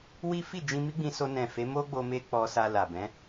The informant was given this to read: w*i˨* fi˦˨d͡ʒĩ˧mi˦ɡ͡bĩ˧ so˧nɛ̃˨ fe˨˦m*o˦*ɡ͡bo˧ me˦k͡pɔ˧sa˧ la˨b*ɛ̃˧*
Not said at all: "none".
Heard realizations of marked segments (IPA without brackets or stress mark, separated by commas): i˦, o˦, ɛ̃˨˦